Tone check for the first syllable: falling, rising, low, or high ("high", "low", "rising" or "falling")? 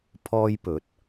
high